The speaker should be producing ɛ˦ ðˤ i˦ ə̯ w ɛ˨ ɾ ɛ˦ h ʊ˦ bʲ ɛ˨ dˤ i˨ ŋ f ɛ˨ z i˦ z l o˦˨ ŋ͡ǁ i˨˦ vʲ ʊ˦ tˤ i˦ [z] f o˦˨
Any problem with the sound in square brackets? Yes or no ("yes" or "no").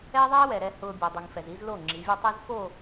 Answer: no